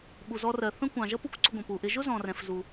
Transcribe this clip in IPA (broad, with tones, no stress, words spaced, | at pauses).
ɓu˩zɔ˧rɜ˩ θə̃˥kʷɑ̃˩ ʒʌ˥ pu˥kʷǀʊ˧ɡʷə̃˩ pu˩ʔɪ˧ ʒʊ˥ zɔ̃˩rɛ̃˩f zu˩